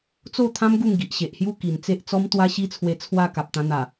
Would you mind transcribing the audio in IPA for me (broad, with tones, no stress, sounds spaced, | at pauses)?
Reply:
t͡s o˥˧ t̪ʰ ã˦ m ɡ u˥˧ ŋ ɡ i˨ ʔ ɕ e˨ ʔ h j u˥˧ k i˨˩ n t͡s e˦ ʔ t͡s ɔ˦ m t̪ w a˦ ɕ i˦ t͡sʰ w e˧ t͡sʰ w a˥˧ k a˨ p̚ t̪ ã˧ n̪ a˨˩